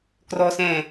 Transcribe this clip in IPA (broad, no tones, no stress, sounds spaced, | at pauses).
k r ɔ s ɛ̃ː